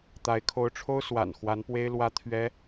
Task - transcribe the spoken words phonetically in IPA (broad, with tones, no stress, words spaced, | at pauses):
t̪a˧˥ɪ̯ kʰo˧˥ʊ̯ʈ͡ʂʰo˥ʊ̯swa̰˨˩n xwa˧˥npwe˥ɪ̯ lwä˥t̪ʰɥɛ˥